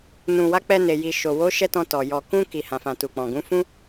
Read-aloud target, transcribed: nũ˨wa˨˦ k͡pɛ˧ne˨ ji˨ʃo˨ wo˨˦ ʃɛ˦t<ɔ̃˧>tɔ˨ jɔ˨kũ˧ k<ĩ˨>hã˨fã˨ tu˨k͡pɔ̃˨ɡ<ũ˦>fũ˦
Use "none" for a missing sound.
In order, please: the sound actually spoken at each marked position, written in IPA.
ɔ̃˧, i˨, ũ˨˦

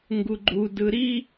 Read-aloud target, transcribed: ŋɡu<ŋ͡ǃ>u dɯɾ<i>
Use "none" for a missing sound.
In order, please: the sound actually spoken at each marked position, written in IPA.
ɡ͡ǃ, i

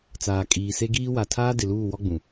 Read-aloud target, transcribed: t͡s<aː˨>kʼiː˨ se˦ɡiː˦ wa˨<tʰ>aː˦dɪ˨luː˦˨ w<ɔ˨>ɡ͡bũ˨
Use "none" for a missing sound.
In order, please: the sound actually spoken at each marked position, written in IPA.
aː˨, tʰ, ɔ˦

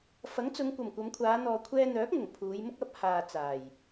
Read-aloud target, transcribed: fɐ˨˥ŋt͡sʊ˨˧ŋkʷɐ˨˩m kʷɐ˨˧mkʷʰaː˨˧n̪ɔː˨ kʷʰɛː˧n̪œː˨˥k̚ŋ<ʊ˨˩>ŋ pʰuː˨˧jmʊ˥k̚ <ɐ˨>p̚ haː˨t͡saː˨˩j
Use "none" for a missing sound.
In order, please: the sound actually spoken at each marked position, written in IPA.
ʊ˨˩, ɐ˧

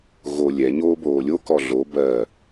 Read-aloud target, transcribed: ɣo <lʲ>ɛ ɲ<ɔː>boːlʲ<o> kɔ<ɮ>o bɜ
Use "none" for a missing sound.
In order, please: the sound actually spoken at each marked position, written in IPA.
lʲ, oː, o, ɮ

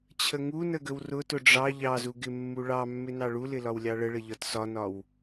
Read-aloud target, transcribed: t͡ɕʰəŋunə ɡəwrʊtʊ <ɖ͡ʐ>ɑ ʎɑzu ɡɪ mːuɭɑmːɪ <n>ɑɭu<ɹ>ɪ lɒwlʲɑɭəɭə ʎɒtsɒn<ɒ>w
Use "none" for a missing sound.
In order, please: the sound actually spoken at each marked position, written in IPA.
ɖ͡ʐ, n, l, ɒ

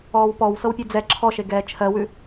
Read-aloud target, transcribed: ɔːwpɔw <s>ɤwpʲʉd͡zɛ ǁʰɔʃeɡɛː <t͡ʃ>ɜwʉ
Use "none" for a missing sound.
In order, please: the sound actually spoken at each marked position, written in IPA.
s, t͡ʃʰ

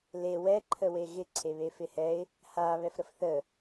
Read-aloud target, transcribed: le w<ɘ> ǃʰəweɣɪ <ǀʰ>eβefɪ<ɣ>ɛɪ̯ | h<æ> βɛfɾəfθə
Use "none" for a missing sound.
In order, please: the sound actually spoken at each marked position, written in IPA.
ɛ, ǀʰ, h, a

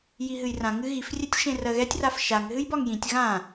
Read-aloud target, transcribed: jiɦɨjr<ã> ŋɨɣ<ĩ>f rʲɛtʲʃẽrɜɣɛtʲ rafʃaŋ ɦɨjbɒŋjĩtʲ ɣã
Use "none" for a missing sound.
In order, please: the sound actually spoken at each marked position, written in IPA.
ã, i

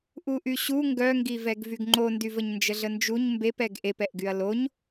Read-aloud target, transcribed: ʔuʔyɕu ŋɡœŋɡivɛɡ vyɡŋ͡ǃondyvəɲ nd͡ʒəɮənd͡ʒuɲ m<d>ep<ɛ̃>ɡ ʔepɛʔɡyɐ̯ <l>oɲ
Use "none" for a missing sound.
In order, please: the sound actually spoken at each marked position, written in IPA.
b, ɛ, l

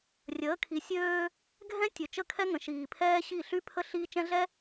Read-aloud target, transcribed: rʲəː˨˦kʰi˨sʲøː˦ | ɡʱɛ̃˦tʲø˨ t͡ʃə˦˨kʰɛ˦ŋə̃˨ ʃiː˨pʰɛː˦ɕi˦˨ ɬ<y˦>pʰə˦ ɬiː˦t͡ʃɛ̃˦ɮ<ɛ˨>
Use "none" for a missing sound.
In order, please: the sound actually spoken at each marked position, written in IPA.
y˦, ɛ˦

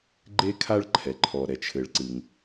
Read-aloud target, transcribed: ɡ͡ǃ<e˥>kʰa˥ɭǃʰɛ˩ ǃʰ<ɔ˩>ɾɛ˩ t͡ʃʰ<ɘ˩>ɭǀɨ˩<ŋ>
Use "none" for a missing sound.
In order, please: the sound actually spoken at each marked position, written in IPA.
e˥, ɔ˩, ɘ˩, ŋ

